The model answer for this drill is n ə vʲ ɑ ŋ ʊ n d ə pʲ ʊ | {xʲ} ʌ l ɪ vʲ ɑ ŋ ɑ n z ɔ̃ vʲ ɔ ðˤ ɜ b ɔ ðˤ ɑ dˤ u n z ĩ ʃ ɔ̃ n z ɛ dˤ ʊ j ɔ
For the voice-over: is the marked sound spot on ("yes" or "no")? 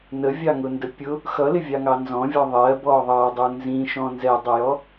no